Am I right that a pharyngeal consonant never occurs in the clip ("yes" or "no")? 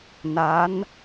yes